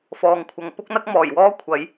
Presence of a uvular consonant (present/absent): absent